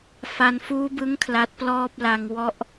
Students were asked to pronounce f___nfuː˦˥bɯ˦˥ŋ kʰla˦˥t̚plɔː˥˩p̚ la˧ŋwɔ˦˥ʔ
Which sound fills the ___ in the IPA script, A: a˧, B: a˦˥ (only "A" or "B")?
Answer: A